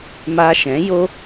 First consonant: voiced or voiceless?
voiced